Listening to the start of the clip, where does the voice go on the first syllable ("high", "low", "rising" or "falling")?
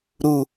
high